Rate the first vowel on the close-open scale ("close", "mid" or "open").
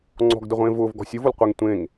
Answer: mid